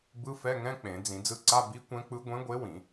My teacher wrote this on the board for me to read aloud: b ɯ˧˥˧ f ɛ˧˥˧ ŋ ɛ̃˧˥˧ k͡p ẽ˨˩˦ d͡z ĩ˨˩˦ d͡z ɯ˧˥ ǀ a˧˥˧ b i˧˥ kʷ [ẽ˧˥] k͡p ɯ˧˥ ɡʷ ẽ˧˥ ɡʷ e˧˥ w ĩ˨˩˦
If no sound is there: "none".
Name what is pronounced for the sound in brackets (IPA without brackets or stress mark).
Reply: ɛ̃˧˥